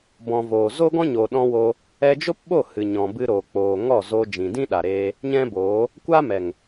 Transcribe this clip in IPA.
b ɔ̃˨ v oː˨ z o˦ ɡ ɔ̃˦ ɲ o˨ ɗ ɔ̃˧ w o˧ | ɛ˧ d͡ʒ o˦ p ɓ o˦˨ h ɨ˨ ɲ ɔ̃˨ b ɨ˧ ɾ oː˨ k͡p oː˨ ŋ ɔ˦˨ z oː˧ d͡ʒ ĩ˨ d ĩ˦ ɗ a˨ ɾ eː˧ | ɲ ɛ̃˦ b oː˨˦ | kʷ a˦ m ɛ˨ ŋ

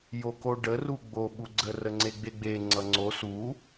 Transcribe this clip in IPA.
j o k o ɖ ə r u ɡ͡b o ɓ u ɡ͡ǀ ə r ə ŋ͡ǀ e ɡ͡b e ɡ͡b e ŋ͡ǀ ʌ ŋ͡ǀ o s u

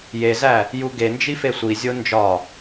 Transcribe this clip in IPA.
j e z æ | j u ɡ e n d͡ʒ i f e sʷ i zʲ o n d͡ʒ ɒ

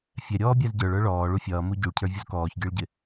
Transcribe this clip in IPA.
fʲ ɛ ɾʲ ɔː bʲ æ z ɟ ə˞ ɭ ə˞ ɭ ɔː ɭ u fʲ ʌː m u ɟ u ɭ cʰ ə˞ vʲ u z k ɔː ç ɡʲ ə˞ ɭ ɟ ɪ

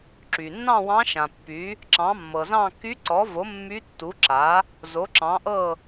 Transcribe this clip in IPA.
ǁ y˩ nː ɑ̃˥˨ w ɑ̃˧˥ ʃ ã˩ pː y˩˥ | ǁ ɑ̃˩˥ mː ɤ˩ z ɑ̃˥˨ k y˧˥ ǀ ɔ˩˥ v o˩˥ mː y˧˥ tː u˩˥ ǁ a˩˥ | z o˩˥ ǁ ɑ̃˩˥ ʔ ɤ˥˨

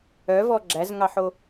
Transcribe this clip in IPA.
œ v ɔ ɡ͡ǁ æ z ŋ ɑ ħ o

